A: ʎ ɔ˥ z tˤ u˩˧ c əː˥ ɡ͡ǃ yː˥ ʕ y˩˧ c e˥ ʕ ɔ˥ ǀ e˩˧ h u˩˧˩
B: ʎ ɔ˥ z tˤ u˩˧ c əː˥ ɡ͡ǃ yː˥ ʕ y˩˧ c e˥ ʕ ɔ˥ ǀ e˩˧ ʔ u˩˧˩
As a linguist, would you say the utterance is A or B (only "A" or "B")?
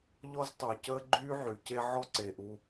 B